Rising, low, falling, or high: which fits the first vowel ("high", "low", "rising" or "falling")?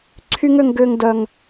high